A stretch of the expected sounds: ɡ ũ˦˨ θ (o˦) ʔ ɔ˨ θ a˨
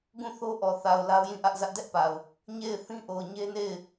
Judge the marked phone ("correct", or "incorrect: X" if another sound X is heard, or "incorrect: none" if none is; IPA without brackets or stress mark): correct